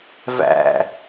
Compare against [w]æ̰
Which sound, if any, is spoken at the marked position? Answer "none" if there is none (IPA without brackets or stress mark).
v